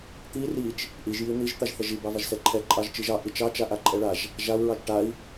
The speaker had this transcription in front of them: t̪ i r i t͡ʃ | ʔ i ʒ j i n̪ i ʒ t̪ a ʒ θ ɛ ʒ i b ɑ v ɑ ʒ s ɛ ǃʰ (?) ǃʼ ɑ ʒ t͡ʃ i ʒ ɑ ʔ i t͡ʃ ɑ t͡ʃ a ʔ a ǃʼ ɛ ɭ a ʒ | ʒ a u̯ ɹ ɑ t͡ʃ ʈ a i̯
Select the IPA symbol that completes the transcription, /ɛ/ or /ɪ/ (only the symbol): ɛ